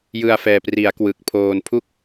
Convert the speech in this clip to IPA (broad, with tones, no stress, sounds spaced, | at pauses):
j ɯ˧ a̯ f ɛː˨˩ p r i˩˦ a̯ k w ɯ˨˩ k̚ pʰ oː˧ n pʰ u˥˩ k̚